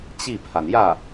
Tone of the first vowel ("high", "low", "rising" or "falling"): falling